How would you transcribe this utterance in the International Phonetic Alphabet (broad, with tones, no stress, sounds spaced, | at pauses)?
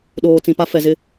ɗ oː˨ t͡s ĩ˨ p a˦ f ɛ˨ z ɪ˦